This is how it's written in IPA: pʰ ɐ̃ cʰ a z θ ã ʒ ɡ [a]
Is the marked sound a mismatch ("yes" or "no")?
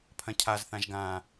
yes